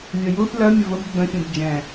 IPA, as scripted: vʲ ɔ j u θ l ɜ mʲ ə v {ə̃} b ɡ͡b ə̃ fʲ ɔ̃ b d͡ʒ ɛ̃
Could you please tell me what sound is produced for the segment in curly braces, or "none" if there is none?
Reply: ə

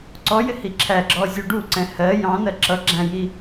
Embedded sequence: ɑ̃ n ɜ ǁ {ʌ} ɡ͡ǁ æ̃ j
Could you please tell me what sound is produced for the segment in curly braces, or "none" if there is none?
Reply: ʌ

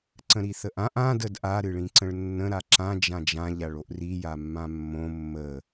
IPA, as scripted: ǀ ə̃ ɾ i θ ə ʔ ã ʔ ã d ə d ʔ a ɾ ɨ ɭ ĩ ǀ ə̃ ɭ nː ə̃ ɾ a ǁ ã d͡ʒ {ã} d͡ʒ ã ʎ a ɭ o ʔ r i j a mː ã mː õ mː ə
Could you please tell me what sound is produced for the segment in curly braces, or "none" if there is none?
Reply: ã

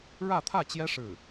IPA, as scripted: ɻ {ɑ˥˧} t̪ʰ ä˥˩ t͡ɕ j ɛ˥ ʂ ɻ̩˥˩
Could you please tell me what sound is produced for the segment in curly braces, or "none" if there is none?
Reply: ä˥˧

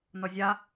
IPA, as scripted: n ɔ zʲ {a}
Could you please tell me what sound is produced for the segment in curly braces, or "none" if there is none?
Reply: a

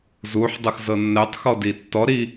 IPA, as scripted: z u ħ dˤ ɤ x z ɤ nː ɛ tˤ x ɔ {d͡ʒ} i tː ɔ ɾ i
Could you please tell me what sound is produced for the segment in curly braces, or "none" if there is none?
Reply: d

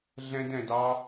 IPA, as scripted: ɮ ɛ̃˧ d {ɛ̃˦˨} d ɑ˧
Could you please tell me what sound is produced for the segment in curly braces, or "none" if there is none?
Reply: ɛ̃˨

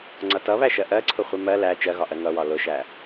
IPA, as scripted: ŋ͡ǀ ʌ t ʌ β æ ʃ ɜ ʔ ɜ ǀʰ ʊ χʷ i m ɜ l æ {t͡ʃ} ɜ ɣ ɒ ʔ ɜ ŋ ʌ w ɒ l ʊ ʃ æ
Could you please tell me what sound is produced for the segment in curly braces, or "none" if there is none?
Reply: t͡ʃ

